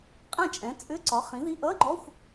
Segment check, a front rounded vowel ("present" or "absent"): present